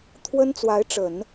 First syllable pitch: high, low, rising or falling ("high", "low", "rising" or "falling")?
high